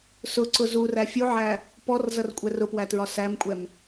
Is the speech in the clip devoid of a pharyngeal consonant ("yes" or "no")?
no